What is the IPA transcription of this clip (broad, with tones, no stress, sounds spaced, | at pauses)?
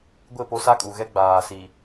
ɡʷ ɪ˦˨ p o˦ s a˦ kʼ u˨ ɣ ɛ˦ ɡ͡b aː˨ s i˨